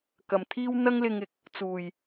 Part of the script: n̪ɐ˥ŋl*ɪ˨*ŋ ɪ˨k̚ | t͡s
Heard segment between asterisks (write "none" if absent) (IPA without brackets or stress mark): ɪ˧